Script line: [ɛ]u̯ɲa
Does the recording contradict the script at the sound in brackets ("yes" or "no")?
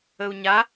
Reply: yes